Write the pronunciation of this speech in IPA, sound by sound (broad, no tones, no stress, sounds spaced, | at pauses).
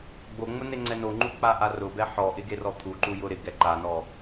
ɡ͡b o ŋ͡m ʊ n e ŋ͡ǀ ɛ n o ŋ͡ǃ u k͡p a ʔ a r ʊ b ɛ ħ ɔ ʔ ɪ ɡ e r ɔ t̪ʰ u ǃ u j ʊ ɾ ɪ ɡ ɛ ǃ a n ɔ